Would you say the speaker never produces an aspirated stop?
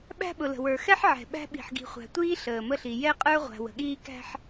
yes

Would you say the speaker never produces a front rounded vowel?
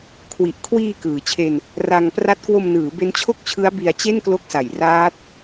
yes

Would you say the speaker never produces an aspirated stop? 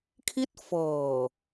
no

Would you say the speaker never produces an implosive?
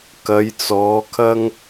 yes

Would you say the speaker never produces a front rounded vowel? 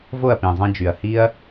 no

